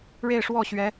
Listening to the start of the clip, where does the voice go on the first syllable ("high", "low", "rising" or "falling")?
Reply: falling